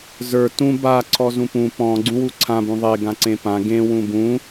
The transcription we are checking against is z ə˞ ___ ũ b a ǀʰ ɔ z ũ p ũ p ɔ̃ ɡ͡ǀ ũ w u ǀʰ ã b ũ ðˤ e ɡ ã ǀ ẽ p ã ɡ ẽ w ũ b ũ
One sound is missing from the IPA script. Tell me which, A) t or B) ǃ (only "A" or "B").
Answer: A